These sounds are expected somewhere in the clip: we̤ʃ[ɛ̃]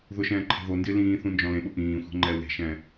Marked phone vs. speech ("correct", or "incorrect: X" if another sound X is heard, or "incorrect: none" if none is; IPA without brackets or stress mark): correct